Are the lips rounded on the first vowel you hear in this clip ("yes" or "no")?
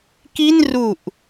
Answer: no